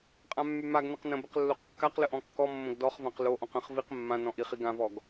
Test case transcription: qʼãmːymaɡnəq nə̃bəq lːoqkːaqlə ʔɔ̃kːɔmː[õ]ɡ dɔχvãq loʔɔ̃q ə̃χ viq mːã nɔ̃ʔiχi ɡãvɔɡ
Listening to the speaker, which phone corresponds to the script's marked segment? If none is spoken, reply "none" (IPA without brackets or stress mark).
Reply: õ